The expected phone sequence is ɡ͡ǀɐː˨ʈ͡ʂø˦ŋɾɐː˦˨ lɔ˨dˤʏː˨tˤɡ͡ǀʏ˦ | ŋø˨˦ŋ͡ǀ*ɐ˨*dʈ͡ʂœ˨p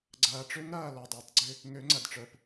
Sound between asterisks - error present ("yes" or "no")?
no